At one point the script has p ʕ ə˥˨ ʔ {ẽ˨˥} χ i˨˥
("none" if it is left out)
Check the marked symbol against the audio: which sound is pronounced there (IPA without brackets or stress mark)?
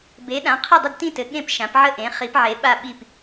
ẽ˨˥